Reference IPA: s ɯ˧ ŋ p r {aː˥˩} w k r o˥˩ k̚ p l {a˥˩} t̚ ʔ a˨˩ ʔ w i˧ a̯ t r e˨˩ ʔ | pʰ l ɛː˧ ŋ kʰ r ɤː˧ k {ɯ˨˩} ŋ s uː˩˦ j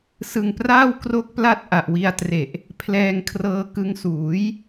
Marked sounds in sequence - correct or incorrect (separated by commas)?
correct, correct, incorrect